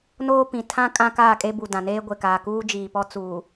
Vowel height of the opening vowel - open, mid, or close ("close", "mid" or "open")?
mid